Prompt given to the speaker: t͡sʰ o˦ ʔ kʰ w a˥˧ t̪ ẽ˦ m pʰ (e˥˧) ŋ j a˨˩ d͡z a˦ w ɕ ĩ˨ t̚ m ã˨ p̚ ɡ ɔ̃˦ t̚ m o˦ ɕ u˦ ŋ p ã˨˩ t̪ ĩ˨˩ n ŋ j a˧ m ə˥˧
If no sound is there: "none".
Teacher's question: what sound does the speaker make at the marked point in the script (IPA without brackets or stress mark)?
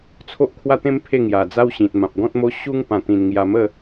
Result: e˥˧